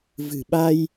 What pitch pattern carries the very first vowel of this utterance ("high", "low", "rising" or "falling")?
low